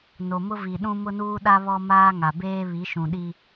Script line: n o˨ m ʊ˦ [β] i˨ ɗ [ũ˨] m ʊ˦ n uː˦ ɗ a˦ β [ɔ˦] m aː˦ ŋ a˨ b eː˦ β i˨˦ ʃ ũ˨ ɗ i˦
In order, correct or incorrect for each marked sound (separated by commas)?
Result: incorrect, incorrect, correct